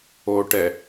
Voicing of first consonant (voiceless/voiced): voiceless